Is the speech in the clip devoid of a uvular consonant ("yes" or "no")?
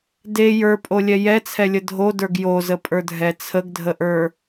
yes